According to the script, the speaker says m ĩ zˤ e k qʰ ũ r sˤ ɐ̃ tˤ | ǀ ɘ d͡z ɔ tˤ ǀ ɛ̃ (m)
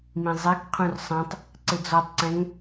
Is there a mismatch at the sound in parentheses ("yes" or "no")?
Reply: yes